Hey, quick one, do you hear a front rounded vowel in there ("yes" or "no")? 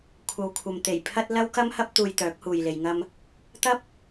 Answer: yes